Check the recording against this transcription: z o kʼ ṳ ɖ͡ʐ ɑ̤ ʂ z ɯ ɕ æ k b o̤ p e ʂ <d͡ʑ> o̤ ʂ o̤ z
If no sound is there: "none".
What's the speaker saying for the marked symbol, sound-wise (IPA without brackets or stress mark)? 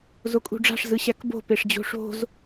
d͡ʑ